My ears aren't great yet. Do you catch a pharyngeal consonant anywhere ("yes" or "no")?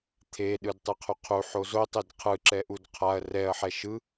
yes